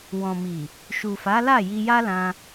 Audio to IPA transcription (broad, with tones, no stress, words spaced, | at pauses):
wɔ̃˨mi˨ | ʃu˨fa˨˦la˦˨ ji˧ja˦lã˧